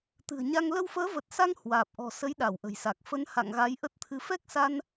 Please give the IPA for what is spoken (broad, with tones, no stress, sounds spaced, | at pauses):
t̪ ɨ̤˨˩ ə̯ ɲ a˧ ŋ l ə˧ w f əː˨˦ v ə˨˩ t̚ s a˧ ŋ h w aː˨˩ p̚ ʔ ɔ̤˨˩ s ə˨˦ j ɗ a˧˩ w ʔ ə̤˨˩ j s a˨˩ k̚ f ə˨˦ n h a̰˧˨ ŋ ɣ a˨˦ j ʔ ə˦˥ t̚ t̪ʰ ɨ˧ f ɛ˦˥ k̚ s a˧ n